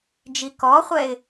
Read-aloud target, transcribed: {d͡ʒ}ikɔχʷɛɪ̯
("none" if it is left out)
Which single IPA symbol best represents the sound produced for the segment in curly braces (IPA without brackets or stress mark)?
d͡ʒ